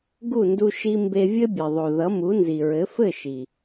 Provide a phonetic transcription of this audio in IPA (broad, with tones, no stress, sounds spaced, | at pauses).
ɡ u˦˨ n d u˧ ʃ i˧ m b e˧ vʲ ɘ˦ bʲ ɘ˨ ðˤ o˨ ð ʌ˨˦ m u˨˦ n z i˨ ɹ ɘ˨˦ f ɘ˦˨ ʃ i˨